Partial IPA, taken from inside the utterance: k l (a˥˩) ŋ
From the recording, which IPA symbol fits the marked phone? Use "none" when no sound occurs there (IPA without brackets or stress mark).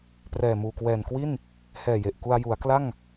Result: a˥˩